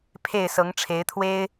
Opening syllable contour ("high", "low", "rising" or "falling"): falling